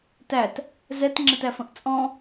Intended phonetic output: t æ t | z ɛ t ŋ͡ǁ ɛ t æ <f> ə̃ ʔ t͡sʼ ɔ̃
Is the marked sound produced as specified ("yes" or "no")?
yes